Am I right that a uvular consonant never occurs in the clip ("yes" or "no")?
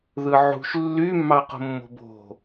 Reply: no